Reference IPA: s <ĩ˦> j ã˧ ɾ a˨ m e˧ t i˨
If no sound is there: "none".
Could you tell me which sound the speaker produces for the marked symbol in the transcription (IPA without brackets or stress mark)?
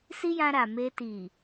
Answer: i˦